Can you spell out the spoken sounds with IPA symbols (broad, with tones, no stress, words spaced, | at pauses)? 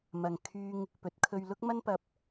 mɐ˨ŋ kʰyː˧ŋ | pɵ˨˥t̚kʰɵ˧ɥ lʊ˥k̚mɐ˥npɐ˧p̚